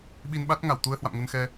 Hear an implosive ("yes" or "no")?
yes